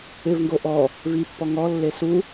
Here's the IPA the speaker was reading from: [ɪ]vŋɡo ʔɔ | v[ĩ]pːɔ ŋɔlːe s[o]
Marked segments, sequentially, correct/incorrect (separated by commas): correct, incorrect, incorrect